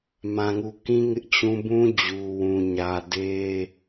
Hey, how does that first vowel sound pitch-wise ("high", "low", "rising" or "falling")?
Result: low